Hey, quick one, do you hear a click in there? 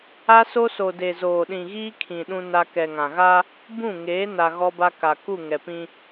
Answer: no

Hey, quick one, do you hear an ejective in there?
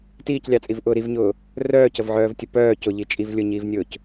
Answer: yes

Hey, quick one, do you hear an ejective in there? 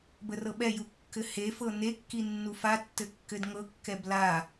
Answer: no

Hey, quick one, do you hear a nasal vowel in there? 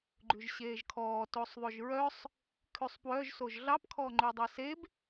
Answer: no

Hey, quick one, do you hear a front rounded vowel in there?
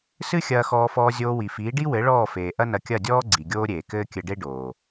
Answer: no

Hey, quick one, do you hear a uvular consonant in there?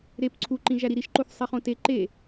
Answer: yes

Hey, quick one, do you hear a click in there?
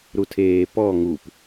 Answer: no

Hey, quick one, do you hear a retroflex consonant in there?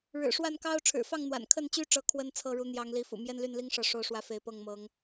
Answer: yes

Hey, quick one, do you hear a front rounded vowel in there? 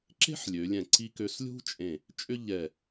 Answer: yes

